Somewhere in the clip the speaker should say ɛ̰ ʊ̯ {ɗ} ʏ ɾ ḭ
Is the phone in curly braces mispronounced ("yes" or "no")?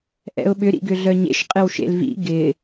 yes